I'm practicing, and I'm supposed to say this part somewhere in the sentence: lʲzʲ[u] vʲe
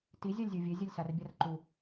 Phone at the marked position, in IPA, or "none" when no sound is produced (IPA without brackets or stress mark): u